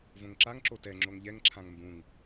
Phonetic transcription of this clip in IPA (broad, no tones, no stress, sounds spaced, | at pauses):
v õ ŋ ǁ a ŋ ǁ o t ɛ ŋ͡ǁ o ŋ ʎ ɛ ŋ ǁʰ ã ŋ m b ũ ŋ